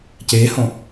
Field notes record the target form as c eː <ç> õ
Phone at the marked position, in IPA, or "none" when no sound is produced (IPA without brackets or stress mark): h